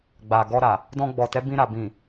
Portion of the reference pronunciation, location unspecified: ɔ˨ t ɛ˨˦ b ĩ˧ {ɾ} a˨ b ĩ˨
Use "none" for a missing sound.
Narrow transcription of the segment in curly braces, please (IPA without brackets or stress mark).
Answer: ɾ